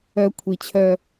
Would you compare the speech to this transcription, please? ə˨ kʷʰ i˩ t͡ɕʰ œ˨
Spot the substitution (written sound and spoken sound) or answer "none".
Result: ə˨ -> œ˨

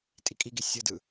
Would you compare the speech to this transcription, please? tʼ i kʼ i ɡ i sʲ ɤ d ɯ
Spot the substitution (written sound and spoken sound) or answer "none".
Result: none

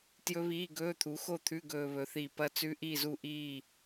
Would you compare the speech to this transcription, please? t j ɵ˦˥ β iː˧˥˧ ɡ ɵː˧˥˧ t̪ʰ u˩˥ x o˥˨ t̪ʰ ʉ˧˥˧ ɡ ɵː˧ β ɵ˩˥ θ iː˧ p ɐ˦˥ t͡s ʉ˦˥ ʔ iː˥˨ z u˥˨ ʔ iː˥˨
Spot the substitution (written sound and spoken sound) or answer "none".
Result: none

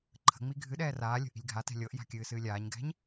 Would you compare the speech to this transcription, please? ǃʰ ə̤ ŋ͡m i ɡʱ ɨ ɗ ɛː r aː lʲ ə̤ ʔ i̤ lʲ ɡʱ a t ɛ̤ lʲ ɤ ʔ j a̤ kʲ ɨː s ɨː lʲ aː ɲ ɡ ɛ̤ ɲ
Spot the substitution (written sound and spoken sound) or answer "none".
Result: none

